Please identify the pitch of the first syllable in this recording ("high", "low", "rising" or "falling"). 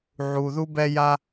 high